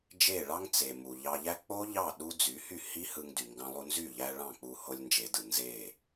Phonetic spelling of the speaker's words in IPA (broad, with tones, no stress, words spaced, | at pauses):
d͡ʒe˦˨ɭɑ˦ŋ t͡se˨mu˨ ʎɑ˧ʎæ˦ k͡po˦ʎɑ˦˨ ɗu˦ d͡zy˨˦hy˦˨hi˦ hɯ˧ŋdy˨ŋɡɑ̃˧lˠu˧ nzy˦˨ʎæ˧ ɭɑ̃˦˨k͡pu˧ ho˧lʲnd͡ʒe˨dɯ˨ nze˦˨